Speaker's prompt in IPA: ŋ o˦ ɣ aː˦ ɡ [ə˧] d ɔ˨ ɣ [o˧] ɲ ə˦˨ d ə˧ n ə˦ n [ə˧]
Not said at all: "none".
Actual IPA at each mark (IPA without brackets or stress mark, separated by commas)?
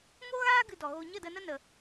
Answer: ɨ˧, o˧, ə˧